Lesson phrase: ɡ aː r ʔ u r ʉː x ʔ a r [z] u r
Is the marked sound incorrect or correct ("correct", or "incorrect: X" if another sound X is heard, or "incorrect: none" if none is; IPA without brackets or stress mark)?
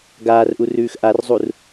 incorrect: zˤ